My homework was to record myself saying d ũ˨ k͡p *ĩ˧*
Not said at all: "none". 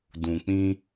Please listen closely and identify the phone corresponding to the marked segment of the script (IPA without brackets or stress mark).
ĩ˧